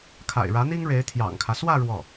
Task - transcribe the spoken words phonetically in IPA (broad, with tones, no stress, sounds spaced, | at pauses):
kʰ a̰˨˩ ɪ̯ ɻ ä˧˥ n̪ i˥ ŋ ɻ e˧˥ ɪ̯ t̪ʰ j ɑ̰˨˩ ŋ kʰ ä˦ s w ä˥˧ ɻ w ɔ˥˩